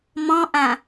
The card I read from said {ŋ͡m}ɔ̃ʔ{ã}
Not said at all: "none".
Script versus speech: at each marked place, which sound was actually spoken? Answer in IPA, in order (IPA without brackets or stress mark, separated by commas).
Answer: m, ã